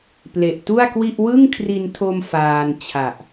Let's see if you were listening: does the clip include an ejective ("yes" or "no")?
no